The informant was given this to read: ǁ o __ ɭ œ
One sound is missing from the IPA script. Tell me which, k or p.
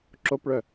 p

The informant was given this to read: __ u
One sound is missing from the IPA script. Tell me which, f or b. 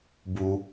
b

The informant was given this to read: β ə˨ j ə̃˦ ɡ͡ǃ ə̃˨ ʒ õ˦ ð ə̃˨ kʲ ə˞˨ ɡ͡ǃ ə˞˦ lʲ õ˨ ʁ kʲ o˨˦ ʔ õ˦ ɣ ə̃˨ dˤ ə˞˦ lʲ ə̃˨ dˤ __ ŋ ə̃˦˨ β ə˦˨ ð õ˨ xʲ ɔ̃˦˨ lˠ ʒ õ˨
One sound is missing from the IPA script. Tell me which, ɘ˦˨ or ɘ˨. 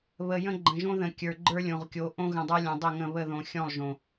ɘ˦˨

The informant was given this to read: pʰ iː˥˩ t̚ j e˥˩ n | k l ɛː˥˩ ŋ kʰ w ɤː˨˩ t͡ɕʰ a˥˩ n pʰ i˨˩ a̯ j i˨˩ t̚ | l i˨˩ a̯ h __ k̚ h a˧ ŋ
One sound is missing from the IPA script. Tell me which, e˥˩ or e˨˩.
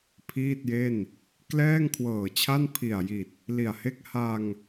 e˥˩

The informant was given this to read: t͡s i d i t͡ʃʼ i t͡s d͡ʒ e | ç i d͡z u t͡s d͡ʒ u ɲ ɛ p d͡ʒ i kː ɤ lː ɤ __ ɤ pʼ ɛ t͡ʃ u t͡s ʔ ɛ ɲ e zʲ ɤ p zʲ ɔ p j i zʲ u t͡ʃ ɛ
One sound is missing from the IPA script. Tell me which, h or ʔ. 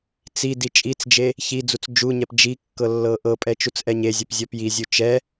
ʔ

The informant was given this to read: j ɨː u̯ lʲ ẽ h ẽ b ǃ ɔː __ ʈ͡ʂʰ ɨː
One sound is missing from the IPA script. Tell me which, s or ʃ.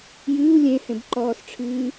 s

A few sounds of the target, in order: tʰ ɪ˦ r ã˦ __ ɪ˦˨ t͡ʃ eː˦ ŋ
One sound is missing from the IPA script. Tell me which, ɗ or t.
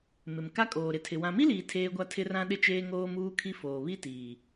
ɗ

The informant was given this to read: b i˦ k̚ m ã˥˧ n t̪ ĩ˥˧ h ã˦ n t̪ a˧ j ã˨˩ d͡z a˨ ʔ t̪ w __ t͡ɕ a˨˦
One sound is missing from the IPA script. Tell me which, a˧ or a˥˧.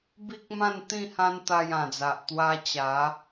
a˧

